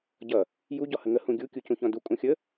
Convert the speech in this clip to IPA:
ɟ ʌ | j u ɟ ɔ h ə ŋ ə h ũ ɡʲ u kʲ u c ũ ç ɔ̃ d u kʼ ũ xʲ ə

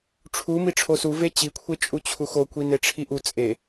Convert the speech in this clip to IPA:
ʈ͡ʂʰ u m i ʈ͡ʂʰ o s u v e t͡ɕ i kʷʰ e t͡ʃʼ u t͡ɕʰ u x o kʷ i n e ʈ͡ʂʰ i ʔ u t͡sʼ e

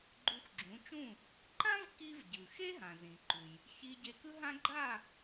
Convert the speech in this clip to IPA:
ɡ͡ǃ u˧ x ɡ͡ǁ ũ˩˥ t͡ʃ ũ˥˩ | ǃ ã˥ v k i˧ v ɟ ɯ˩ x e˥ ɦ ã˩ z ĩ˩ ǃ u˩ j | ç i˧ ɟ e˧ k ɯ˥ ɦ ã˥ ɡ͡ǃ a˥˩

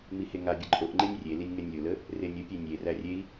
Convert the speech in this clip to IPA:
m i h e ŋ a bʲ ə ǃʼ o ʔ ŋ͡ǃ e nʲ rʲ e l i nʲ ŋ ɛ nʲ lʲ o l ə | r e nʲ ə pʲ e nʲ e r æ rʲ e i̯

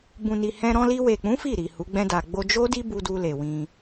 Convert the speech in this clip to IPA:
b ũ˨ n i˨ h ɛ̃˧ ɾ ɔ̃˧ l i˧ w e˨ k͡p ũ˨˦ f i˦˨ ɾ i˨ h u˨˦ ɡ͡b ɛ̃˦ d a˧ ɡ͡b o˧ d͡ʒ o˦ d i˦ b u˧ d u˧ l e˨ w ĩ˧

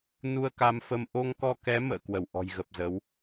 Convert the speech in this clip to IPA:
n u˧ ə̯ k a˧ m f ə˧ m ʔ o˧ ŋ k ɔ˧ k ɛ˨˦ m ə̰ː˧˨ k w ə˧˩ w ʔ ɔ̤˨˩ j ɣ ə˨˩ p̚ z ə˨˦ w

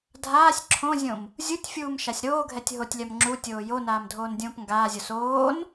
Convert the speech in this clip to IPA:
dʱ aː sʲ ǁʰ õ zʲ õ m | zʲ u tʲ fʲ uː m ʃ a sʲ ɾ oː ɡʱ ɛ tʲ ɦ o tʲ lʲ a m ŋ͡ǁ u tʲ oː j o n aː m dʱ oː n dʲ õː p ŋ ɡ aː zʲ o s oː n

